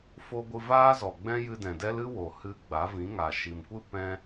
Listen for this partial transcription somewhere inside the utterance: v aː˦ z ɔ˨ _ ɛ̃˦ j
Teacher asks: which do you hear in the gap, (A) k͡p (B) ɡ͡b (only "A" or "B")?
B